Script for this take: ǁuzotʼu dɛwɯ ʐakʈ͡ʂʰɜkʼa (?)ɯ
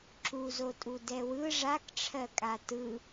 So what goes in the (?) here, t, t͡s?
t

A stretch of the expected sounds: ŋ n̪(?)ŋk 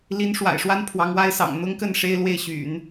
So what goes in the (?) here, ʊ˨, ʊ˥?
ʊ˥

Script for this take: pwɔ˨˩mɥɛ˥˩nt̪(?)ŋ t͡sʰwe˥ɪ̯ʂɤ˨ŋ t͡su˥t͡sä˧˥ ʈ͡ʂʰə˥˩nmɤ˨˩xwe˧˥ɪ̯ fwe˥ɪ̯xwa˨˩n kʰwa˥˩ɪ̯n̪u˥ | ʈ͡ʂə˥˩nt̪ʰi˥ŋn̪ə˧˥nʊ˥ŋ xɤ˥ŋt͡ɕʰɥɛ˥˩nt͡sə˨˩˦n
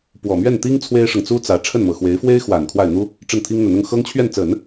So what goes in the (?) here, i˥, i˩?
i˥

